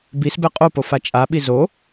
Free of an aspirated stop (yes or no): yes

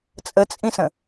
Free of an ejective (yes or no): no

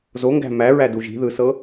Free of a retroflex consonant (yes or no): yes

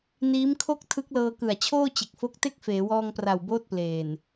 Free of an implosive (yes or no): yes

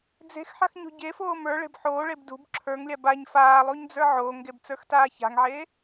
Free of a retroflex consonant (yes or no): no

